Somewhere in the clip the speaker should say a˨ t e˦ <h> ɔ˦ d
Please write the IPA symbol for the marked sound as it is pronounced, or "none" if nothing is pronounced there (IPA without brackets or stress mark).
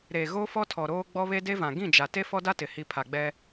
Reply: f